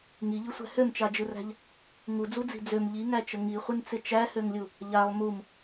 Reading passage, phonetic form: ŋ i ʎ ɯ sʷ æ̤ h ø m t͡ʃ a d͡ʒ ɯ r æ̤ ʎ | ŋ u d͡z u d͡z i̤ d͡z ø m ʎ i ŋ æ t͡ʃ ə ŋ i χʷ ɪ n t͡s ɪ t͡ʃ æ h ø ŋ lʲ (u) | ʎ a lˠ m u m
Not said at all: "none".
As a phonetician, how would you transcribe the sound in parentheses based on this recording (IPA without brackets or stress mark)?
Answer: u